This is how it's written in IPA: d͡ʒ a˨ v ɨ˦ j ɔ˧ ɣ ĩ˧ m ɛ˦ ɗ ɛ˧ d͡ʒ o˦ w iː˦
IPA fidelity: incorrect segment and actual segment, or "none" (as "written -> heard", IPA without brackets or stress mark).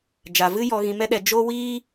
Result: none